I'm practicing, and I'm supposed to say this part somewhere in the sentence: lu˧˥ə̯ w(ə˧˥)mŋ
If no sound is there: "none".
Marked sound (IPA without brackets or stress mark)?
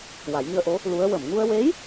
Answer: ə˨˩˨